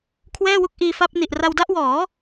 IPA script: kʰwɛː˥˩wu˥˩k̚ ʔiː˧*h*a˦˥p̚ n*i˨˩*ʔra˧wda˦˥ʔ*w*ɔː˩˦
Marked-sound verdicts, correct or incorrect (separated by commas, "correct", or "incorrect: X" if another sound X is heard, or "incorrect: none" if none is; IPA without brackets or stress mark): incorrect: f, correct, correct